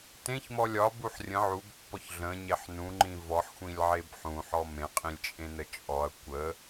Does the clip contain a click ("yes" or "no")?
yes